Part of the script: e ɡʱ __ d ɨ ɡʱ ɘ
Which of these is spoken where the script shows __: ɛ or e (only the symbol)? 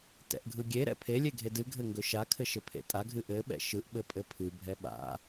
e